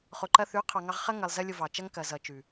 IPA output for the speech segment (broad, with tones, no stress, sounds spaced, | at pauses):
χ o˨ ǃ ɐ˧ θ ʉ˨˦ qʰ ɑ˨ ŋ ɑ˧ ʁ χ ɐ˦ ŋ ɐ˨ lˠ z ɐ˦ lʲ o˧ v ɑ˨ t͡ʃ ɐ˦ ŋ k ɐ˨ z ʌ˨ t͡ʃ ʉ˨